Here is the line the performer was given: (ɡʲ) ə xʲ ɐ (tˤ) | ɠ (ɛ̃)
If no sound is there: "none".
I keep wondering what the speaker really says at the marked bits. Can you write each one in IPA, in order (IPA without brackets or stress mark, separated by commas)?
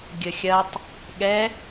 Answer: ɡʲ, tˤ, ɛ